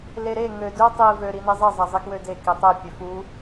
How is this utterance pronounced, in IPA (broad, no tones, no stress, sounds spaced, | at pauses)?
l e ɾ e ŋ ø d ø tˤ i v ø ɾ i n i zˤ e zˤ æ zˤ i k w ø d e k i tˤ e pʲ ø f u